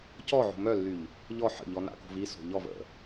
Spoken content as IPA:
c ɔ ʕ o̤ m œ lː y ʎ | ʎ ɔ ħ ə̰ ʎ ɔ n a̰ k o̤ v i s o̤ ʎ ɔ v ə̰

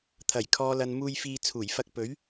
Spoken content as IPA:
t̪ʰ ɐ˨˩ j kʰ ɔː˨ l ɐ˨ n m uː˧ j f iː˧ t͡sʰ uː˨˩ j f ɐ˧ k̚ p ɵ˨˥ ɥ

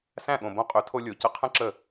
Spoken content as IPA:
s æ̃˦˨ ɠ õ˨ b õ˧ qʼ ø˨˦ tʰ o˧ lʲ o˨ c ə˧ qʰ ə̃˦ ǁ ə˦˨

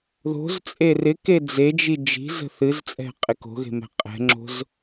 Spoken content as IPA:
ð o̤ z t͡sʼ e r ɪ k e d͡z e d͡ʒ i d͡ʒ i̤ z ə̤ θ ɨ z t͡sʼ ɛ̤ qʼ e k o̤ ɣ e̤ m ɛ̤ qʼ ɛ̤ ŋ͡ǁ o̤ z

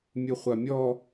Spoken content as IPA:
mʲ u χʷ a mʲ ɔ

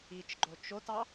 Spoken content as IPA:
i t͡ʃ ɡ͡ǃ o t͡ʃ o t ɑ

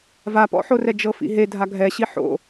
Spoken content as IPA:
v a p ɔ̰ ħ o r ɛ d͡ʒ ɤ f ḭ ɦ e dʱ a ɡʱ ɛ ɕ i ħ o̰

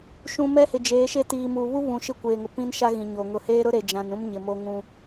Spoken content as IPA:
ʃ ũ˨ m ɛ˦ h ɪ˨ d͡ʒ eː˨˦ ʃ e˦ t iː˨ m u˨ β u˦ β ũ˨ ʃ ɪ˦ kʷ eː˨ ŋ ʊ˨ p ĩ˦ n ʃ a˦ ɣ ĩ˨ ɲ o˨ ŋ ʊ˨ h eː˦ ɾ ʊ˦ ɾ e˨ d͡ʒ ã˨ n ũ˦ m ɲ ɪ˨ m o˦ ŋ ũ˦

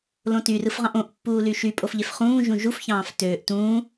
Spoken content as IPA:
l õ t y r ɯ f ʁ ɑ̃ ʔ õ ʔ pː uː l y ʃ y pʼ o f ʎ e f χ ũː ʒ ũ ʒ u f ç ɑ̃ː f t øː ʔ t ũː

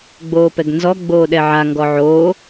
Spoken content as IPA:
ɡ͡b oː p ɛ ɡ n z ɔ ɡ͡b oː ɗ ɛ ʕ a ŋ ɡ ɔ ʕ oː

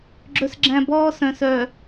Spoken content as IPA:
ɡ͡ǁ ɵ˦ s ɡ͡ǁ æ̃˦ b ɔː˦ s œ̃˨ s œ˨

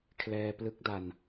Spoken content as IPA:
kʰ l ɛː˧ p l ɯ˦˥ k̚ d a˧ n

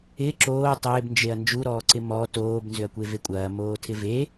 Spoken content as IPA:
ɪ ǁ oː tˤ ɪː b n d͡ʒ e ɐ̯ n d͡ʒ u ɾ ɔː ǀ ɪ m ɔ t oː b n z ʏ ɐ̯ kʷ e v e kʷʼ ɐː m oː tʰ ɪ v e

